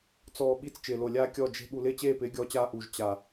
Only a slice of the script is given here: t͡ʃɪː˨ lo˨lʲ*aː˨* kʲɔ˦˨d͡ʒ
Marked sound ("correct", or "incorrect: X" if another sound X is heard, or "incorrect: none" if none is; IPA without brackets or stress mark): incorrect: aː˦